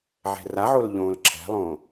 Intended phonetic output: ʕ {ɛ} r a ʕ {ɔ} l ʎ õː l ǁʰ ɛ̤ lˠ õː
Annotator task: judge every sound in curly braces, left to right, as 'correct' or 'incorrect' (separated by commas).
incorrect, incorrect